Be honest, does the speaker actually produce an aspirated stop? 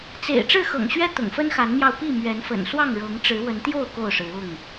no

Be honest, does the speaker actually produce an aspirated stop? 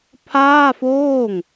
yes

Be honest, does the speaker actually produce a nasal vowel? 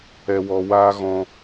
yes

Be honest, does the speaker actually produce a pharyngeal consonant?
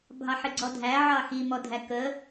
yes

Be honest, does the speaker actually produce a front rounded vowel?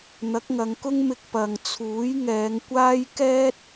no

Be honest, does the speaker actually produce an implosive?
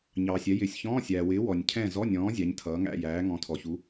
no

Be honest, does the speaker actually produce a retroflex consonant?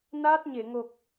no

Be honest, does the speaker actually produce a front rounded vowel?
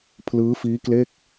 no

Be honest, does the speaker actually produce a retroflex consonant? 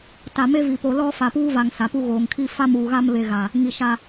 no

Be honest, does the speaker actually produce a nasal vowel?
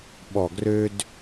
no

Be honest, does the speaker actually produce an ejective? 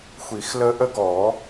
no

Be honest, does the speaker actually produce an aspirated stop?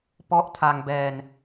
yes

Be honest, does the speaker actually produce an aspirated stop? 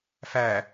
no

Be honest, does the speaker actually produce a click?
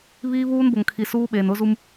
no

